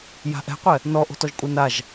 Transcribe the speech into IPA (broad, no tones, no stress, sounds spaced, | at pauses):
j a̤ ʔ ɛ̤ qʷ ɛ | n ɔ ʔ o̤ t ɔ ʒ kʷʼ ɛ n a ʒ